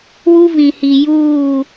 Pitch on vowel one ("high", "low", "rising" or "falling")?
high